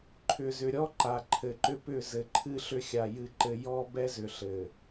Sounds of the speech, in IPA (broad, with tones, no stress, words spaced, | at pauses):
ǃʰʏ˨zʏ˨ɾʲɔ˦ǃa˨ ǃʰɘ˨ǃʏ˦pʏ˦˨ zɘ˨ǃʰɨ˦ɬʏ˦xʲa˨ jɨ˦ǃɘ˦ jɔ˦ bɛ˦zʏ˨ɬɘ˨